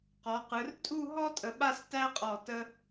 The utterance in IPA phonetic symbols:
q ɔ˩˧ q ɯ˩˧ r tʼ u˥˧ ɦ ɔ˥ tʼ ə˧ ɓ a˥ s t æ˥ qʼ ɔ˧˩ t ə˧

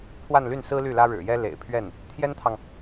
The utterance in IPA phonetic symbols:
pʰ w a˥˧ n l y˥˩ n s ɹ̩˥ l y˥˩ l ä˥ ɻ ɻ̩˨˩ j ɛ˥ l ḛ˨˩ ɪ̯ pʰ ɥ ɛ˥˩ n | t̪ʰ j ɛ˥ n t̪ʰ ɑ˨ ŋ

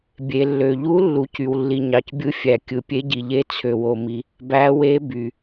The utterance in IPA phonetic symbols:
bʲ e˩ lː ø˩ ʎ u˧˥ lː u˩ c y˩ w lː i˩ ɲ ɑ˩ c bʲ ɯ˧˥ fʲ æ˩ kʲ ɯ˩ pʲ e˧˥ ɟ i˩ ʎ e˧˥ t͡sʰ ø˩ w o˩ m i˩ | b æ˧˥ w e˧˥ b y˩

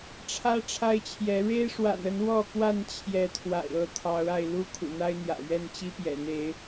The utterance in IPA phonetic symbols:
ʈ͡ʂʰ ä˦ ʈ͡ʂʰ a˦ ɪ̯ t͡ɕʰ j ɛ˨˦ ɻ e˦ ɪ̯ ʂ w a̰˨˩ n ə˨˦ n w ɔ˥˨ k w a˥˨ n t͡ɕʰ j ɛ˨˦ t̪ʰ w a̰˨˩ ɪ̯ ɤ˥˨ t̪ʰ ɑ˨˦ ʊ̯ a˧ ɪ̯ l u˦ kʰ ṵ˨˩ n̪ a˦ ɪ̯ n̪ j ä̰˨˩ ɥ ɛ˥˨ n t͡ɕ i˦ p j ɛ̰˨˩ n̪ e˨˦ ɪ̯

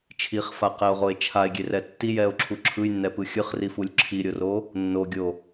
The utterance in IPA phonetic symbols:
t͡ʃʰ i χ f a q ɛ o̯ ʁ o e̯ t͡ʃʰ a e̯ ɡʲ e r ɛ tː i j ɛ o̯ ǁʰ u ǁʰ ɯ j nː ɛ p ɯ xʲ ɯ χ r i f u lʲ ǁʰ i ɾʲ o r o | nː o ɡʲ o

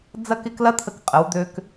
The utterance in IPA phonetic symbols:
d͡z ɐ˥˧ k ɪ˥˧ k l ɐ˥ t̪ʰ ə˧ k qʼ ə˩˧ w d̪ ø˧ k

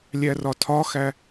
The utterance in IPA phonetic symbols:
lʲ æ r ɒ tʰ ɒ x æ

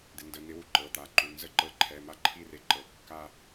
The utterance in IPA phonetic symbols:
d̪ ɪ˩˧ n d ə˩˧˩ n ɪ˧˥ w u˩˧ ǃ ɤ˩˧˩ t̪ a˩˧˩ ǃ u˩˧˩ n z ə˥˧ ǃ ɤ˧˥ ǃʰ ɛ˩˧˩ m a˥˧ ǃʰ i˥˧ r e˧˥ ǃ ɤ˩˧ kː a˥˧

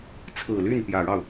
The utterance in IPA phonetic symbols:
t͡sʰ ɹ̩˨˩ l y˥˩ n p j ä˨˩ ɻ ɑ˥˩ ʊ̯

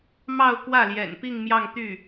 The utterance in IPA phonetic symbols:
m ɑ˥˧ ʊ̯ k w ä˥˩ l j ɛ̰˨˩ n p i˥˧ ŋ m j ɑ˥˧ ŋ t̪ y˥˩

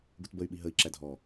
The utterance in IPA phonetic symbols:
ɡ u t b ə y̯ ɓ i ɦ ə i̯ ǁ æ dʱ ɔ

